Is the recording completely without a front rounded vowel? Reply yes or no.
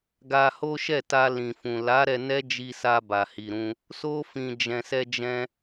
yes